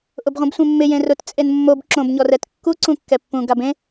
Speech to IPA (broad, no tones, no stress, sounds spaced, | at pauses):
ʔ ʊ b ʁʷ ĩ b sʷ ẽ mː ɪ j ẽ r ʊ t t͡sʼ e n mː o b ǁ õ b ɲ ɔ r ɛ t kː u ǀ ũ kː ɛ pː ũ ɡ a b ẽ